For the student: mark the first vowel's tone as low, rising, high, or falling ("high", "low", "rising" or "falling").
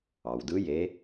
low